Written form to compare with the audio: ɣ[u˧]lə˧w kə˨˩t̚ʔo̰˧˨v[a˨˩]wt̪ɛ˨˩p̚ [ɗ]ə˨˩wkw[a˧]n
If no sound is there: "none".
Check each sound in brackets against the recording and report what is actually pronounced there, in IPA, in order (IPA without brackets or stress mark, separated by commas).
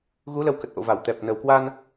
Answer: u˨˦, a˧˩, n, a˧